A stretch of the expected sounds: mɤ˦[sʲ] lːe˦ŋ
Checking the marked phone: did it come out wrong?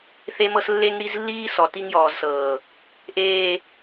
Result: yes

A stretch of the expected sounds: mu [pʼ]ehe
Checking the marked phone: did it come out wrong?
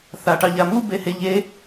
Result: yes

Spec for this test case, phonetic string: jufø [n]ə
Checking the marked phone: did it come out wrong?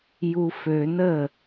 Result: no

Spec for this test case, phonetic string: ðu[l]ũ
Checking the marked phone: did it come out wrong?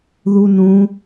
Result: yes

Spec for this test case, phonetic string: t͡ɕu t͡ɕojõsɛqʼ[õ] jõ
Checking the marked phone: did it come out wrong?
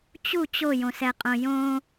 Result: no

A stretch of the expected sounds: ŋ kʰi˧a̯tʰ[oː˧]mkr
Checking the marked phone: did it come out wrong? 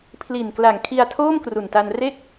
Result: yes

